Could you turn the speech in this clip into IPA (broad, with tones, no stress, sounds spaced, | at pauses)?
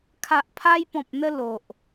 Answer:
kʰ a˨ ʔ pʰ a˧ j p ɔ̃˨ p̚ n̪ ə˧ l o˨ ʔ